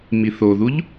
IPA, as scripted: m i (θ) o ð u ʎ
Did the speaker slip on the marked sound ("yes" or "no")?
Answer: no